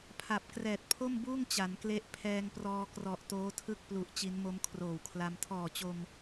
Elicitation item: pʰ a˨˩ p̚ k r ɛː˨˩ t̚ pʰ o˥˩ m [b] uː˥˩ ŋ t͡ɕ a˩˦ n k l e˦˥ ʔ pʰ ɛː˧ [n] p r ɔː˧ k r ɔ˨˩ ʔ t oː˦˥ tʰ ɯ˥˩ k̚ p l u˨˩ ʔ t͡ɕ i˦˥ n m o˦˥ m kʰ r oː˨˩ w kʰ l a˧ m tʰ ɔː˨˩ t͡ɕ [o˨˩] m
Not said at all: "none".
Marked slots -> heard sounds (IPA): b, ŋ, o˧

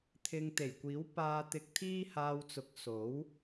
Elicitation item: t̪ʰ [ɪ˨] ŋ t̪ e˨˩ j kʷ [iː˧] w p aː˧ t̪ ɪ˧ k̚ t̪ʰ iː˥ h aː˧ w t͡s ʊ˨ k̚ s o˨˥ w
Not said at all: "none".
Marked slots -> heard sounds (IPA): ɪ˧, iː˨˥

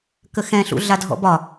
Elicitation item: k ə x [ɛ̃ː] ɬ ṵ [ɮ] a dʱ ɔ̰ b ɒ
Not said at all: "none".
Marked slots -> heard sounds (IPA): ɛ̃, ɮ

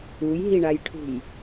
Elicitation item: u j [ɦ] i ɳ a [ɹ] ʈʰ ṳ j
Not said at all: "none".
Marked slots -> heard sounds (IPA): ɦ, j

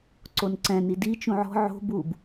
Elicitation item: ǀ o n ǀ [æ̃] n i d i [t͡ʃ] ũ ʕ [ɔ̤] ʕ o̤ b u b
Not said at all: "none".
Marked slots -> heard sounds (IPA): ɛ̃, t͡ʃ, ɔ̤

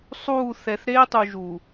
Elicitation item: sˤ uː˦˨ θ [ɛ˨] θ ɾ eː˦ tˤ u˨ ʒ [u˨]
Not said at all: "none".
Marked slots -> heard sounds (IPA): ɛ˨, u˨

